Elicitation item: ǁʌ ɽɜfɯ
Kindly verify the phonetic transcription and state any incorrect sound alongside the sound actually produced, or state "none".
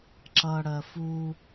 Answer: ɯ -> u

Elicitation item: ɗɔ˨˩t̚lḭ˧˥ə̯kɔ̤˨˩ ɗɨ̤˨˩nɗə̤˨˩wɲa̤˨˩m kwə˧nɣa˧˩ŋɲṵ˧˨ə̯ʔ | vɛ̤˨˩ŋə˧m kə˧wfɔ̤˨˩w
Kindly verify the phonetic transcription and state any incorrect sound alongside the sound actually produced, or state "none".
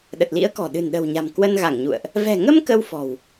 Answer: ɔ˨˩ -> ə˨˩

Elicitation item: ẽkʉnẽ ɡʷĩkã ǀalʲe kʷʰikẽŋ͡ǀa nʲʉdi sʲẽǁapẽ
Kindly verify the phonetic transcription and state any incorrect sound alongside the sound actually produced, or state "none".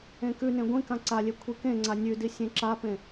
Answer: none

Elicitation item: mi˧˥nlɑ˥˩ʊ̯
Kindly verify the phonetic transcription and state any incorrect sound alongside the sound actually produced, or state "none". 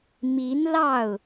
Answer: none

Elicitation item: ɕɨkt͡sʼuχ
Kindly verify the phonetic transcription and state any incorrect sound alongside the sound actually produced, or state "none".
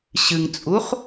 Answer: k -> ŋ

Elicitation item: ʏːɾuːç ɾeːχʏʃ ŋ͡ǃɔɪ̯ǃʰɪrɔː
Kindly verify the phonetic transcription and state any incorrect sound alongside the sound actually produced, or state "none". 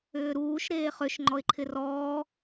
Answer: ç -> ʃ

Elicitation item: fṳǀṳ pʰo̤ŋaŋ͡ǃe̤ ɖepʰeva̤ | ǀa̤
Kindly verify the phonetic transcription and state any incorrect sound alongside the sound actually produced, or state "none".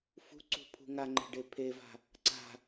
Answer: o̤ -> ṳ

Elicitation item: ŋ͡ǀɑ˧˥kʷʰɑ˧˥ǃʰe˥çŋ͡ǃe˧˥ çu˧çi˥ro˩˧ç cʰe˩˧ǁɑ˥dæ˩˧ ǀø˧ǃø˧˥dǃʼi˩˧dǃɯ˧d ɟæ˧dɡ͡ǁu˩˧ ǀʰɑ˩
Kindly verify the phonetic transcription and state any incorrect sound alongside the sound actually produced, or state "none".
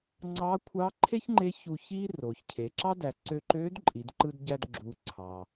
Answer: none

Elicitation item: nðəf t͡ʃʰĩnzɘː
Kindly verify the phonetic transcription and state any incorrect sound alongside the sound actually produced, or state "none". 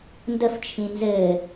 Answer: ð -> d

